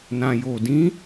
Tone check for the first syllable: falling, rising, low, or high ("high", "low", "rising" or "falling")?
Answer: low